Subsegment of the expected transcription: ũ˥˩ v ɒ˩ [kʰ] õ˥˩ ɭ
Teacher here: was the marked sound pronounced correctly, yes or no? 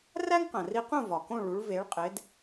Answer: no